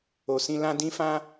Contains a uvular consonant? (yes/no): no